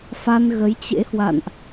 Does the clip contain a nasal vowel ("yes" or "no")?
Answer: no